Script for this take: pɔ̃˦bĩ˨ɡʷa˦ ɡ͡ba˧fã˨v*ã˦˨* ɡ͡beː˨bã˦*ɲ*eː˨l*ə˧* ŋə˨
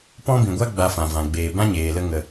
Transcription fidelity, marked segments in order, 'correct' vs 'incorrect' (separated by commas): incorrect, correct, correct